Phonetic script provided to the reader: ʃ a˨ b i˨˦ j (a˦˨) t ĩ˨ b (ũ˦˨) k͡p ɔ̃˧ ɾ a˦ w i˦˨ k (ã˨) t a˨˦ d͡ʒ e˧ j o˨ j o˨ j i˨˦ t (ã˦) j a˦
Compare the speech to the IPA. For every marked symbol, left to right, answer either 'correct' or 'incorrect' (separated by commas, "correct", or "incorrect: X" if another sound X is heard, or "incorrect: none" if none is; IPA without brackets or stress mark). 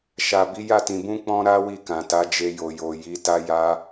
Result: correct, incorrect: ũ˧, correct, incorrect: a˦